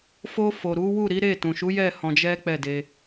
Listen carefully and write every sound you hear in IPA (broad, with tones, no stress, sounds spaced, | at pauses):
f o˧ f o˨ ɾ u˨˦ w u˦˨ ɾ i˨˦ ɾ e˦˨ t ũ˨ ʃ u˨˦ j ɛ˦˨ h ɔ̃˧ d͡ʒ ɛ˦ k͡p ɛ˦˨ d e˧